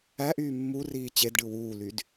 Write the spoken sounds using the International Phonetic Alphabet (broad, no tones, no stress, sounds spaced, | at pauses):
æ ʔ yː mː u r iː t͡ɕ e d ɖ ɯ w uː l y d